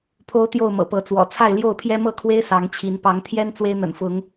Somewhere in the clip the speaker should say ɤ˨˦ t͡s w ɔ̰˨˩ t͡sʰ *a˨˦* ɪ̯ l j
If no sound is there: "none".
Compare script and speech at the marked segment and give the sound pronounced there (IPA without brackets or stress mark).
a˥˨